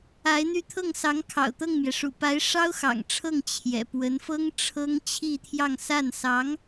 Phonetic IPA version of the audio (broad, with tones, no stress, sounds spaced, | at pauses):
a˧˥ ɪ̯ n̪ y˥˧ t̪ʰ ɤ˥˩ ŋ s ɑ˧˥ ŋ kʰ ɑ̰˨˩ ʊ̯ t̪ ɤ˥˩ ŋ m j ɛ˩ ʂ ṵ˨˩ p a˧˥ ɪ̯ ʂ ɑ˥ ʊ̯ x ɑ̰˨˩ ŋ ʈ͡ʂʰ ɤ˥˩ ŋ t͡ɕʰ j ɛ̰˨˩ p w ə˧˥ n f ɤ˥ ŋ ʈ͡ʂʰ ɤ˥ ŋ t͡ɕʰ i˥˧ t̪ʰ j ɑ˥˧ ŋ s a˥˩ n s ɑ˧˥ ŋ